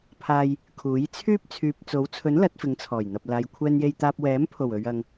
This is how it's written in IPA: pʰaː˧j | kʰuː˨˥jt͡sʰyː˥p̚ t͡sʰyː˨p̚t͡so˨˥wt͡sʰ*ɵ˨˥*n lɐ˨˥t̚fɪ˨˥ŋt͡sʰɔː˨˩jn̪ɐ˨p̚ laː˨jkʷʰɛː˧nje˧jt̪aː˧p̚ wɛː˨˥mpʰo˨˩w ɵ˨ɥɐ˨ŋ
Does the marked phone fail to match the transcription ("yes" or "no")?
no